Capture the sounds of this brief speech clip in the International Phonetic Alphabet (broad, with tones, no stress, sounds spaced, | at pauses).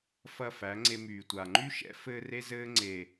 f ɐ˦˨ f æ˨˦ ŋ͡ǀ e˧ m yː˨ tʷ a˨ ŋ͡ǃ y˦ ʃ ɛ̰˦ f ɘː˦ r e˦ z ɘː˦ ŋ͡ǀ e˨